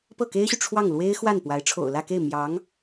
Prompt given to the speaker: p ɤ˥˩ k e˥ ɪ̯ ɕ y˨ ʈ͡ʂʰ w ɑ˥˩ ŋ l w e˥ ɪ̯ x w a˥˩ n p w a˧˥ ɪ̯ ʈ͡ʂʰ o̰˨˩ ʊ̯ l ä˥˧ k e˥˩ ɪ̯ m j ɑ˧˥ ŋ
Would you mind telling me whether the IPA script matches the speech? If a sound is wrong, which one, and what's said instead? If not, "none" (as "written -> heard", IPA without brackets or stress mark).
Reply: none